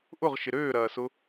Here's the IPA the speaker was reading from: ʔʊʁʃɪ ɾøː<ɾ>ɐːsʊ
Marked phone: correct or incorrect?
correct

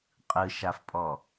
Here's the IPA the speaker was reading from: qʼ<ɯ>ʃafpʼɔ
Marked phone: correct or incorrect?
correct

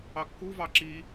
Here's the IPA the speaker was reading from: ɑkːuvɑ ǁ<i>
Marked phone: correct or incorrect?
correct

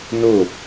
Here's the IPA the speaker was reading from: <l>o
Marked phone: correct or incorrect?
incorrect: n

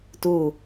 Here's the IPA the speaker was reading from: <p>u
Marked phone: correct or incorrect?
incorrect: t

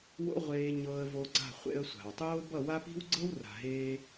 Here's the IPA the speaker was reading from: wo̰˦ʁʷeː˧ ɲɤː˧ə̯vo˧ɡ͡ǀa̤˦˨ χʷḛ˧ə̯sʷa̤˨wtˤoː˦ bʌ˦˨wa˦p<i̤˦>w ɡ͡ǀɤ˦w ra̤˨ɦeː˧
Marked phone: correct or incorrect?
correct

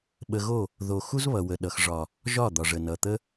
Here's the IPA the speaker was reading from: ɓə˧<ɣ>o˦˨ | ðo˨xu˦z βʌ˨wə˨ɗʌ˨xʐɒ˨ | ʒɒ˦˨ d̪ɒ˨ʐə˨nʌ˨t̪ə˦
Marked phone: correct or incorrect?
correct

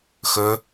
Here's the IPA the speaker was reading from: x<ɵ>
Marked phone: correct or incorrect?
correct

